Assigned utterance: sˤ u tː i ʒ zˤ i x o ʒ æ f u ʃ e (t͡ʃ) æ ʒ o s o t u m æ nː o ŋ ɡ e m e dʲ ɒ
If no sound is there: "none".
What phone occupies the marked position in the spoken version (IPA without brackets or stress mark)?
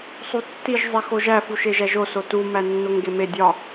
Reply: ʒ